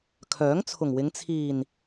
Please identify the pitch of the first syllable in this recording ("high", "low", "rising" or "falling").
rising